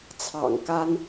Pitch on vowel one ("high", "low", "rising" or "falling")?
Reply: low